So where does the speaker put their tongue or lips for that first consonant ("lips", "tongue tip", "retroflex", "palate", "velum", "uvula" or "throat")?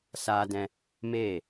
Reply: tongue tip